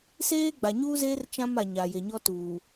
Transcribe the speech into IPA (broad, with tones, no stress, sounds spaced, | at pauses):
s eː˦ ɡ͡b a˨ ɲ uː˦ z eː˦ r t͡ʃ ã˦ m a˨ ɲ a˨ j e˨ ɲ ɔ˦ t uː˨